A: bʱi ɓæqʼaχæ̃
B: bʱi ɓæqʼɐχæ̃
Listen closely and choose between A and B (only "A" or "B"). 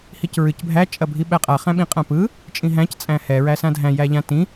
A